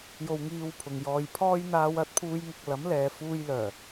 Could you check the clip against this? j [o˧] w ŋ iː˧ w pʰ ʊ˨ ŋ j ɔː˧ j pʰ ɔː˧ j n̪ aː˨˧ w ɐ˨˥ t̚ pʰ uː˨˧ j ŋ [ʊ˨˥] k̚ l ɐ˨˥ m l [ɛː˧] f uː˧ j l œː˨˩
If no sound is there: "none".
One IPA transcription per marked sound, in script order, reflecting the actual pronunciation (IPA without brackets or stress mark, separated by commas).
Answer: o˧, ʊ˨, ɛː˨˧